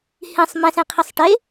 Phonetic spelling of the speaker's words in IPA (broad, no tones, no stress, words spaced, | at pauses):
hĩsˤ mɛ̃sẽqʰisˤ ʈe